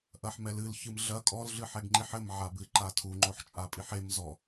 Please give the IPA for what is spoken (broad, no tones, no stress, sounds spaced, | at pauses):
ʔ ɐ ħ m ɛ l ɨ l ç ɨ m ɮ ɐ kʼ ɔ l ɮ ɨ ħ ɛ ɡ ŋ͡ǃ i ħ ɘ m ʕ a b ɨ ǃ a tʰ u ŋ͡ǃ o ħ t͡ʃʼ a pʼ i ħ e m z ɔ